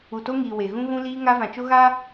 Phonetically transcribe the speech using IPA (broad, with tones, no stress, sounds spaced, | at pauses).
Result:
u˨ t o˦ ŋ iː˨ w e˨ ɣ ũ˦ ɣ ũ˦ l iː˦ ŋ a˦ v ã˨ t͡ʃ o˦ ɣ a˦